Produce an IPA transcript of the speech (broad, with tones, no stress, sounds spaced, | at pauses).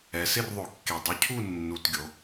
ɛ˩˧ s ɪ˥˨ r ðˤ o˧˩˧ kː e˨˩ dˤ ʊ˨˥ cʰ u˥˨ nː u˨˩ t ɡʲ o˩˧